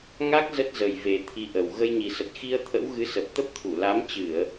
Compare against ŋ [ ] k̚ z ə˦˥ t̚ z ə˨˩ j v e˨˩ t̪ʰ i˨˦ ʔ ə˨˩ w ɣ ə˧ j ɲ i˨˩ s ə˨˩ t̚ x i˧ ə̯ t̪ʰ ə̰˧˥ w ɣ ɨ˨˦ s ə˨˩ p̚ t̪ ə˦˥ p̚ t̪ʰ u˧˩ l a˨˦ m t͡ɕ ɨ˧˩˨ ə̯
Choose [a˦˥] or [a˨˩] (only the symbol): a˦˥